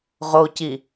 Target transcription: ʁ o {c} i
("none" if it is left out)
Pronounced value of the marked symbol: c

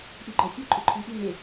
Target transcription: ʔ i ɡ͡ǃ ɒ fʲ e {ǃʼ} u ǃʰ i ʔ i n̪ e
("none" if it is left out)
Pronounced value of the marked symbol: ǃʼ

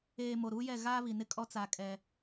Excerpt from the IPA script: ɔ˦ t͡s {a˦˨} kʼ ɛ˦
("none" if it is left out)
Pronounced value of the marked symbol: a˦˨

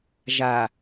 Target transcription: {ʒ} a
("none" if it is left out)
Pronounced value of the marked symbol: ʒ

